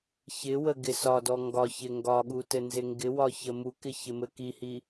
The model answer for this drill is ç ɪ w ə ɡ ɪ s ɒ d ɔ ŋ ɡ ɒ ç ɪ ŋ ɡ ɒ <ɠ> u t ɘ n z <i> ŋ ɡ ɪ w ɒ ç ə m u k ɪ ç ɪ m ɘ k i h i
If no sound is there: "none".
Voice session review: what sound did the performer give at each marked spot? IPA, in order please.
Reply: ɠ, ɪ

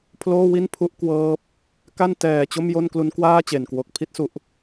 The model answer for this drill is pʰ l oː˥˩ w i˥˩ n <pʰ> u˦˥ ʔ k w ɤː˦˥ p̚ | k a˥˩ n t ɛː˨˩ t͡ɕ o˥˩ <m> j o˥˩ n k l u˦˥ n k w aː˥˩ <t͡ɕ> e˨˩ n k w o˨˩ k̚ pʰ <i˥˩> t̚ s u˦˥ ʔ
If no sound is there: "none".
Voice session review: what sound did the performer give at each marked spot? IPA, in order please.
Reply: pʰ, m, t͡ɕ, i˥˩

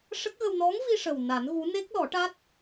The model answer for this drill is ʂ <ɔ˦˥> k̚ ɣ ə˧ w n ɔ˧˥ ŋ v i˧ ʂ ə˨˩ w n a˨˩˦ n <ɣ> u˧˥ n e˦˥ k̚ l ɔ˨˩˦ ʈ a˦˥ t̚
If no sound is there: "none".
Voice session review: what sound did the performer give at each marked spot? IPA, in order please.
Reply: ə˦˥, ɣ

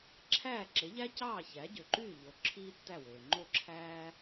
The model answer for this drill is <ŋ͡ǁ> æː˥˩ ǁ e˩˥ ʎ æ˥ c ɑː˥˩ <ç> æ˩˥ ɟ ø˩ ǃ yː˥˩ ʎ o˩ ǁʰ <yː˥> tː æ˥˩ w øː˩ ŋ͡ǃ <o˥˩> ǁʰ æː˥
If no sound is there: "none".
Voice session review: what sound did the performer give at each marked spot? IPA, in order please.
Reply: ǁʰ, ç, iː˥, o˥˩

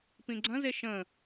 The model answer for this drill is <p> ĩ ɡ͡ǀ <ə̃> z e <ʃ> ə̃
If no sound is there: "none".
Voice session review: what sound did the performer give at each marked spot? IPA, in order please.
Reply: p, ɐ̃, ʃ

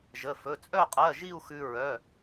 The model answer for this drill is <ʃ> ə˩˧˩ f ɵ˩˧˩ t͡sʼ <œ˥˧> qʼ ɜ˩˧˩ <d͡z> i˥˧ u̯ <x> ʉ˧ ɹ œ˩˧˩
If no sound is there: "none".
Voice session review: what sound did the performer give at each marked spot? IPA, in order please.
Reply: ʒ, œ˥˧, ʒ, x

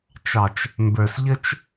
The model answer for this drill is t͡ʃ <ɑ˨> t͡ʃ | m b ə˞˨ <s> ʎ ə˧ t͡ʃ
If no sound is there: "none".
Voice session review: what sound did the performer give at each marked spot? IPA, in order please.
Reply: ɑ˨, s

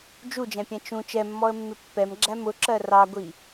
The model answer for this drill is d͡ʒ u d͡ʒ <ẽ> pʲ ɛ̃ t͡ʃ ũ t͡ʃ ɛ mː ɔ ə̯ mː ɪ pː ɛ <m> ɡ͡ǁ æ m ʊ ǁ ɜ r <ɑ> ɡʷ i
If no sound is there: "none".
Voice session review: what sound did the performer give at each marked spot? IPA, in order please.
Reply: ɛ̃, m, ɑ

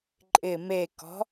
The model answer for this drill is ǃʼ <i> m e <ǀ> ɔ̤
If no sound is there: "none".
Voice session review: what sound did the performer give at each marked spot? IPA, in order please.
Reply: ɪ, k

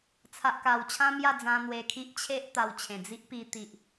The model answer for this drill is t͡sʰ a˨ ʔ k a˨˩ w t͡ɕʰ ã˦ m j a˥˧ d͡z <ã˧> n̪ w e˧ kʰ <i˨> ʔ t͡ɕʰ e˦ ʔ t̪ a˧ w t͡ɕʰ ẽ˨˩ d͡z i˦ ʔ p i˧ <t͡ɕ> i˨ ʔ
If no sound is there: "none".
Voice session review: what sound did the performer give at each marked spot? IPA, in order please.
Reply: ã˧, i˦, t̪

